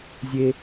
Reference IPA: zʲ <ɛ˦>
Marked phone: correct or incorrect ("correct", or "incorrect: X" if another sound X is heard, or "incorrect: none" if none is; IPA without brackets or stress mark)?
incorrect: e˦